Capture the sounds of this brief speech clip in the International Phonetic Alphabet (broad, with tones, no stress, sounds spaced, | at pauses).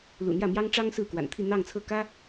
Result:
l ṵ˨˩ n̪ j ä˥˩ m j ɑ˥ ŋ ʈ͡ʂ ɑ˥ ŋ s ɹ̩˥˩ k w a̰˨˩ n t̪ʰ i˥˧ n̪ ɑ˥˧ ŋ t͡sʰ ɤ˥˩ k ä˥